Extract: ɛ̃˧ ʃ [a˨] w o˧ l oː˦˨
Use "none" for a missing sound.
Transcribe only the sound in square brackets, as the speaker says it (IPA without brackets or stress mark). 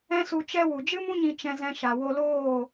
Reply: a˨